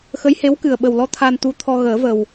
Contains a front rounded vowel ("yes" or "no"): no